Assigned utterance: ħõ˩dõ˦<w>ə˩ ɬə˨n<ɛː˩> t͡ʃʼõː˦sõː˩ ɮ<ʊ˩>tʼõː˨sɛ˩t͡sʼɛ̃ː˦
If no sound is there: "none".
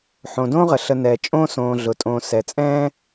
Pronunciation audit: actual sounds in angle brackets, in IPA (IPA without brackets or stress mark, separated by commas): ʁ, ɛː˩, ʊ˩